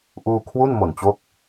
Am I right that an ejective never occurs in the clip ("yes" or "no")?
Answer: yes